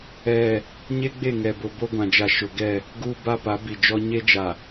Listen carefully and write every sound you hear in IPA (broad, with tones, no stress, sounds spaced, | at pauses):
ɛ˦˨ | ɲ e˦ ɡ͡b e˦˨ ŋ ɛ˨ b ʊ˨ b o˦ ɡʷ ã˨ d͡ʒ a˨ ʃ ʊ˨ ɡ ɛ˦˨ | ɡ uː˦ b a˦ p a˨˦ b i˨ d͡ʒ ɔ˦ ɲ e˦ d͡ʒ a˨